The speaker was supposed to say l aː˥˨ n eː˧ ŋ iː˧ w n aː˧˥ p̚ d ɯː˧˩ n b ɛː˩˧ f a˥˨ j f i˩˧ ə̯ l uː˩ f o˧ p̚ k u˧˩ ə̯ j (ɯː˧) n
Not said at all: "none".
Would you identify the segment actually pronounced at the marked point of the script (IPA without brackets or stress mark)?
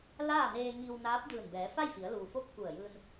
ɯː˧